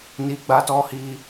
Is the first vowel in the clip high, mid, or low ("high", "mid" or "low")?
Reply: high